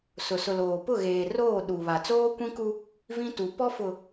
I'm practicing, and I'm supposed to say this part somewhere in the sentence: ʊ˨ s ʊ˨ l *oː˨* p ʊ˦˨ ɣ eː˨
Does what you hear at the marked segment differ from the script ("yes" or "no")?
no